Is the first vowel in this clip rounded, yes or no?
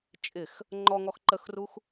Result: no